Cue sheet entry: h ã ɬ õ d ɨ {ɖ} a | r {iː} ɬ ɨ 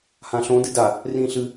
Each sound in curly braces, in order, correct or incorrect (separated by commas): incorrect, incorrect